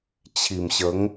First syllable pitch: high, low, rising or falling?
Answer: low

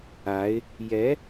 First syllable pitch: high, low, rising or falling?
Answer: rising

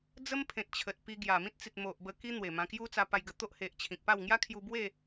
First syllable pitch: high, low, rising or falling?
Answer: high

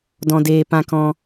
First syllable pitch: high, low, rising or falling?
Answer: high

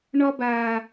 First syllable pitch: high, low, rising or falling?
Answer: high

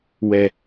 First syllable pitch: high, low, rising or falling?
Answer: low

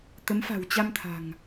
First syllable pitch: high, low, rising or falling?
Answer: rising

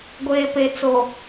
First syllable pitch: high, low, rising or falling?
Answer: low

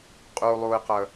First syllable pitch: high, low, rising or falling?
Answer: low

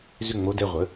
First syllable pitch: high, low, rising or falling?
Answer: falling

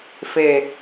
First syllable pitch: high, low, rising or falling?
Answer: low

